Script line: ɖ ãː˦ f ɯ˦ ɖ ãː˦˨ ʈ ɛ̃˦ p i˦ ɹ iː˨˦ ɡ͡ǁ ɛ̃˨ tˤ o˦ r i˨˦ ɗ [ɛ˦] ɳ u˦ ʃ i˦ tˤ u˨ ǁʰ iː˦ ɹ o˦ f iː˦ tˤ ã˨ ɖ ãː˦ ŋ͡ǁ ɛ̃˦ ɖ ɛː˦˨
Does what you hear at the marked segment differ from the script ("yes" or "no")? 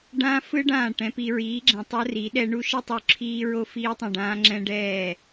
no